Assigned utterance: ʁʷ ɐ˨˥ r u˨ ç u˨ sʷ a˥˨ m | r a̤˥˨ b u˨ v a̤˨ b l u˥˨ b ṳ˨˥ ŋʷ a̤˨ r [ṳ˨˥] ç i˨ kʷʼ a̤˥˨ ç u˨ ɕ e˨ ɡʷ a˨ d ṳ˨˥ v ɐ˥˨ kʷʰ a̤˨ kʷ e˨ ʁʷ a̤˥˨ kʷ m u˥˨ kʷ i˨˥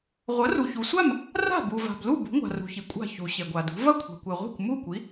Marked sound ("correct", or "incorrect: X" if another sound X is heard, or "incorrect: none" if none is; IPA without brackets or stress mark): incorrect: ṳ˨